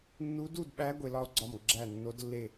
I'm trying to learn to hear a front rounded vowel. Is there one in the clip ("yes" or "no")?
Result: no